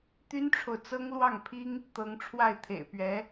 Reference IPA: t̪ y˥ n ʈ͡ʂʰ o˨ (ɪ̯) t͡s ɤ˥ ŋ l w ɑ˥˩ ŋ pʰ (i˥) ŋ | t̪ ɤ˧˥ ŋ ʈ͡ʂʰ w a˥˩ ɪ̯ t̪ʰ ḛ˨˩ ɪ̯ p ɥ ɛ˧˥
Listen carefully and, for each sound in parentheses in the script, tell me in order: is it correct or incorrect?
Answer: incorrect: ʊ̯, correct

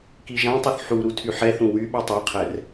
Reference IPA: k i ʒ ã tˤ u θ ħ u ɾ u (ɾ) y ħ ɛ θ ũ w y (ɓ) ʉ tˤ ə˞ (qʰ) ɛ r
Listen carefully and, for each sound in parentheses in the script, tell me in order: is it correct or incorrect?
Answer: incorrect: tʰ, correct, correct

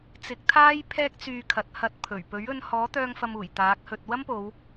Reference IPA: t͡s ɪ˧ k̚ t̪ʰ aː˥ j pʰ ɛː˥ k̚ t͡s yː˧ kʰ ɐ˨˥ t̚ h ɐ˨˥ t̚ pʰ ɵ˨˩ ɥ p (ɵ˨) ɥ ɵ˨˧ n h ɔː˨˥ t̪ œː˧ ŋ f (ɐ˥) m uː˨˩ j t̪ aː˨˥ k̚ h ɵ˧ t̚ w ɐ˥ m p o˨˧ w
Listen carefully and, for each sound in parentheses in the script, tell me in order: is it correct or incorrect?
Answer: incorrect: ɵ˨˥, incorrect: ɐ˨

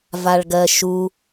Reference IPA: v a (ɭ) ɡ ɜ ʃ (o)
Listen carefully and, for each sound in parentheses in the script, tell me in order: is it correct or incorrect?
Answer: correct, incorrect: u

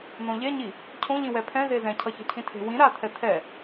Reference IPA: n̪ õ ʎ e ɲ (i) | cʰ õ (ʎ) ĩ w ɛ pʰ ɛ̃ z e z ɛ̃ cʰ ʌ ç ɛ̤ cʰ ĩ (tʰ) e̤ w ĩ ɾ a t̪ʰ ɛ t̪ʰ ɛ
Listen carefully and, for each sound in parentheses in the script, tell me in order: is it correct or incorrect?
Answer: correct, correct, correct

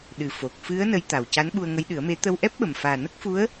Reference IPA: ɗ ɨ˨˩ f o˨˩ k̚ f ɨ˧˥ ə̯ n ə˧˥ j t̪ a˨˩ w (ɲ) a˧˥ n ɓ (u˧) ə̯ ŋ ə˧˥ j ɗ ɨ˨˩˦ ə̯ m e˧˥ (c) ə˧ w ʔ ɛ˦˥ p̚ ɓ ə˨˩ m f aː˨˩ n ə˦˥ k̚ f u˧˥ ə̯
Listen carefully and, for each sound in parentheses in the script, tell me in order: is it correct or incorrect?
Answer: incorrect: c, correct, incorrect: t̪

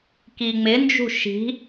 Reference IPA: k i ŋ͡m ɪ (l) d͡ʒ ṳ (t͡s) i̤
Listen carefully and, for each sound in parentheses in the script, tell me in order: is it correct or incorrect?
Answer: incorrect: n, incorrect: ʃ

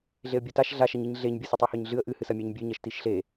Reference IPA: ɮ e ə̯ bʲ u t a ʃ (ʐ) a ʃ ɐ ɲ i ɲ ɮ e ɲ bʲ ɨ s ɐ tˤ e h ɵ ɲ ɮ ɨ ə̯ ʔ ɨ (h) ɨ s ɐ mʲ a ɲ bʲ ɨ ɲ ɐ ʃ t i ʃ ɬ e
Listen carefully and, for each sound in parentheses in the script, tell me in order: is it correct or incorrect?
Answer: incorrect: ɮ, correct

